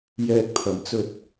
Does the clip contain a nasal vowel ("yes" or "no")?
no